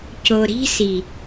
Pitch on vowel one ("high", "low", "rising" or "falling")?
low